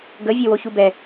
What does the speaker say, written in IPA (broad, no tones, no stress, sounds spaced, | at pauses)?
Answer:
ɡ ə vʲ e w o ç u b ɛ